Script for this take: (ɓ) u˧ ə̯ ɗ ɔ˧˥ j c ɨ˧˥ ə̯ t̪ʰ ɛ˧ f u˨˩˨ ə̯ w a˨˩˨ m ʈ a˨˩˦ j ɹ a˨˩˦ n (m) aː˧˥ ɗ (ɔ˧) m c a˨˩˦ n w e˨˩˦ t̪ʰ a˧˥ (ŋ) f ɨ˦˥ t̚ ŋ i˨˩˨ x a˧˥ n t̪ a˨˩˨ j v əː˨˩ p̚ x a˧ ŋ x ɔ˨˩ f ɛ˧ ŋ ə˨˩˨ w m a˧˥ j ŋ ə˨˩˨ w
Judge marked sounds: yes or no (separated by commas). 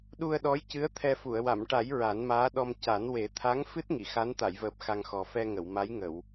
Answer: no, yes, yes, yes